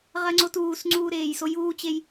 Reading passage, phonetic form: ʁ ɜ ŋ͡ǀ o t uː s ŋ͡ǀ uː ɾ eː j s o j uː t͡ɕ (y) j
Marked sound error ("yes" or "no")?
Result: yes